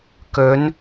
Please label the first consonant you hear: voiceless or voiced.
voiceless